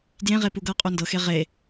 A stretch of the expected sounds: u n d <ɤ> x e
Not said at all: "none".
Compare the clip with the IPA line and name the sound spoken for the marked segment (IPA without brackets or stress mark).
ɤ